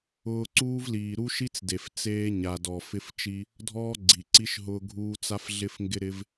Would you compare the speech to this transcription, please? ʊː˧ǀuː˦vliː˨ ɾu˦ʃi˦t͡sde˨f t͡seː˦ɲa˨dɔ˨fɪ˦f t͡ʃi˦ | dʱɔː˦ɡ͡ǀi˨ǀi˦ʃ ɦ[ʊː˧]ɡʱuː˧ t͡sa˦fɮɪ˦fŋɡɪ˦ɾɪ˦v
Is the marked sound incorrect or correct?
correct